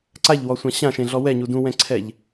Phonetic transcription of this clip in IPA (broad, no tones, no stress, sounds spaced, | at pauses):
ǀ a ʎ w ɔ sʷ ã ɕ ã ʃ ẽ ɮ ɔ w ɛ ɲ u d ũ w ɛ̃ ǀʰ ɛ ʎ